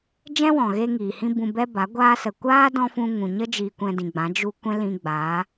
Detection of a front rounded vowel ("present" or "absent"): absent